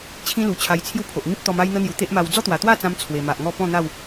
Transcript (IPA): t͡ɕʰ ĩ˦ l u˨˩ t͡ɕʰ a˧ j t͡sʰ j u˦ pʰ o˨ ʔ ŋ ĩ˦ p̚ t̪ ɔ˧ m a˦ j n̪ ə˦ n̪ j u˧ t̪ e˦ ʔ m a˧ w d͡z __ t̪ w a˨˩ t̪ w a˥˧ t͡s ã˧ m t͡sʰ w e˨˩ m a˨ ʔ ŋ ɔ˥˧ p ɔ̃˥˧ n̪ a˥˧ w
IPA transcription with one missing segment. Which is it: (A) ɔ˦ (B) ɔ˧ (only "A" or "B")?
A